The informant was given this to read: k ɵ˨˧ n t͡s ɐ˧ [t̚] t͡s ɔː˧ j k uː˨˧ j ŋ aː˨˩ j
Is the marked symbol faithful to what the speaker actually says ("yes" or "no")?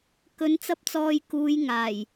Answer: no